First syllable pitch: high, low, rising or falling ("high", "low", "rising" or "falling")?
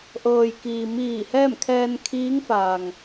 low